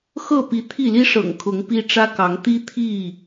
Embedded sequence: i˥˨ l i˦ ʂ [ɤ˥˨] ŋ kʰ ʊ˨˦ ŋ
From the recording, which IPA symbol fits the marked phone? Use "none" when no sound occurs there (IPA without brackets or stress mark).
ɤ̰˨˩